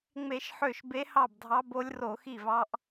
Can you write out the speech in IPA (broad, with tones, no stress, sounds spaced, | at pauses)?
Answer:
ŋ͡m e˧˩˧ ʃ ħ ø˥˩ ʃ b e˧˥ h ɑ˥˩ b dʱ ɑ˧˥ b o˧˥ lʲ r o˧˩˧ x i˥˩ v ɑ˧˥ ʔ